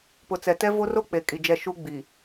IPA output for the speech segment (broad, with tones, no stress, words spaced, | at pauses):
pʊ˨t͡sɛ˨tɛ˦ vo˦ro˦ k͡pe˨kʼi˨d͡ʒɛ˦˨ ʃu˦ ɡ͡bi˨